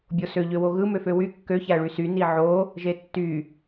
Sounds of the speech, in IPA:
bʲosø ʎøwoɣɯ møføwy kːø çæɭysy niʕo | ʒetːy

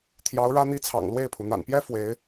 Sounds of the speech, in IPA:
t̪ʰjɑ˧˥ʊ̯ɻä˥n̪i˥t͡sʰɑ̰˨˩ŋ lwe˥˩ɪ̯pʰu˩ n̪a̰˨˩npjɛ˥ fwe˧˥ɪ̯

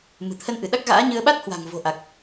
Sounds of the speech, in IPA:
mɨ̤˨˩t̪ʰə˧nʔɨ˧˩ ɗa˦˥k̚ɣa̰ː˧˥ɲɨ˧ə̯ ɓa˦˥t̚hwa̤˨˩ŋ vo̤˨˩ʔa˨˩k̚

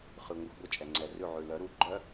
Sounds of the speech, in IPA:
χʉ˩ŋʷɘ˩˧xʷɡʷə˧˩t͡ʃʼɛ˩ ŋ͡ǀɛ˩rʉ˧˩ʕʉ˩ lœ˩˧ ɾu˨˥ɡ͡ǃœ˦˥

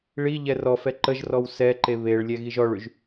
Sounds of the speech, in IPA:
ɭi ʎɛrɔfɛ ǃəʒrɔw sɛǃe βeɭlʲɛ ɣiʒɔɭyʒ

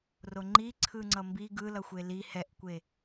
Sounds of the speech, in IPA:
roŋ͡ǃi ǀʰɯŋ͡ǀʌmbi ɡɯ lʌxʷeli hɛʔkʷe

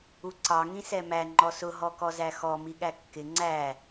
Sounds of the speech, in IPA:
uǀɑ ŋĩsɛmæ ŋ͡ǃɔsʊ ɦɔkɔzæxɔ miɠækːɪ ŋ͡ǀæ

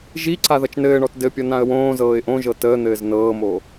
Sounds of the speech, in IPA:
ʒiǀa ðʌt͡ʃnɘːɳɔt dɘpʲʌ nãə̯wõːzɤːɪ̯ ʔõʒɤ təːn̪ɘːz nɤːmo

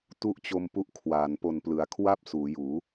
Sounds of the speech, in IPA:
tu˥˩ʔt͡ɕo˧mpu˥˩ʔkʰwaː˩˦n po˨˩nplɯ˩˦a̯ kʰwa˥˩p̚ suː˩˦juː˩˦

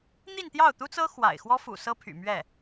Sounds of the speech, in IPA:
n̪i˥˧nt̪jɑ˥˩ʊ̯ t̪u˥t͡sɤ˥ xwa̰˨˩ɪ̯xwɔ˥ fṵ˨˩ sɤ˥pʰy̰˨˩ mɥɛ˥˩

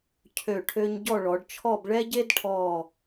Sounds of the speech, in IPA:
cʰø˧˩ʈʰø˧ɲ ɟɔ˥˧ɭɔ˩˧ɖt͡ʃʰɔ˥˧b ɭɛ˥ɟe˥dʈʰɔ˧˩

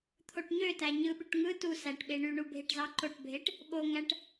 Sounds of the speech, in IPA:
t̪ʰoʈɲøtæ ɲɯɓyʈ ŋɯ tu sæʈɓe ɳyɳu bʱeʈzɑǃoʈbʱeʈ | ɓoŋæʈ

